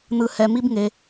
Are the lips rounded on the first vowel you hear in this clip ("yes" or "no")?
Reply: no